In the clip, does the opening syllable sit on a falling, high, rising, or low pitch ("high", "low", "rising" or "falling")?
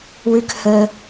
high